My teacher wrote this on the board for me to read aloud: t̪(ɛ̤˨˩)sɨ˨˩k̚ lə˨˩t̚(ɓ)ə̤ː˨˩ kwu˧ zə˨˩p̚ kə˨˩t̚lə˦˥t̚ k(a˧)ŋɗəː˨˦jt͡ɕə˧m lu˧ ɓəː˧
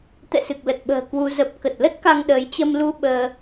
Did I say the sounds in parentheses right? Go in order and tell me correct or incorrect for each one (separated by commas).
incorrect, correct, correct